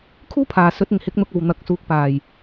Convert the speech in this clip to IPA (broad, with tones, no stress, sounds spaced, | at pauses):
kʰ uː˥ pʰ aː˨˩ s ɵ˨˥ t̚ ɪ˨˩ ŋ h ɪ˨˥ k̚ n̪ ʊ˧ k̚ ɐ˨ w n̪ ɐ˨˥ k̚ s uː˨˥ k̚ p aː˨˩ j